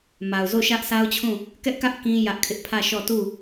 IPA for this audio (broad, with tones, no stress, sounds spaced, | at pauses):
m a˨ ʊ̯ z o˦˨ ʃ ä˦ ʔ sʰ a˦ ʊ̯ t͡ɕʰ ũ˦˨ | k ɛ˦ ʔ k ä˦ ʔ k ĩ˦ j ä˦ ʔ kʰ ɪ˦ ʔ pʰ ä˦˨ ʃ ɔ˦˨ t u˦˨